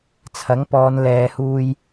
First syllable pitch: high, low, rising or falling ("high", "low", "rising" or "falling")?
rising